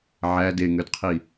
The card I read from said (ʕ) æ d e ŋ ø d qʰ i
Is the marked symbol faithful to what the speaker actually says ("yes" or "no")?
yes